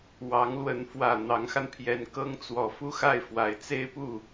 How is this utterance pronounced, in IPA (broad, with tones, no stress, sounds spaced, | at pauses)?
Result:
w ɑ˧˥ ŋ l w ə˧˥ n f w ä˨˩ n̪ ɑ˧˥ ŋ x a˧ n pʰ j ɛ˧˥ n k ɤ˥ ŋ t͡s w ɔ˧˥ f u˥ x a˥˩ ɪ̯ f w a˨˩ ɪ̯ t͡s e˥ ɪ̯ p u˥˩